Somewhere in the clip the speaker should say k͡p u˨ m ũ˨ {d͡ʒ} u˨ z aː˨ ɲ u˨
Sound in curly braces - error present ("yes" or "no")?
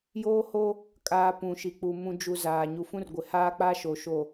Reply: no